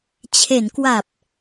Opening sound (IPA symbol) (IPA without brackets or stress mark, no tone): t͡ɕʰ